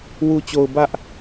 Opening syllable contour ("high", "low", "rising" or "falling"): low